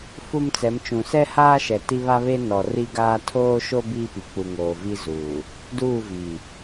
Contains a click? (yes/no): no